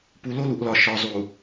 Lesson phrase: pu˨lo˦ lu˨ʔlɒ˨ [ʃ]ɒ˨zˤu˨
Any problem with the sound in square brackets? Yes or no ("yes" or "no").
no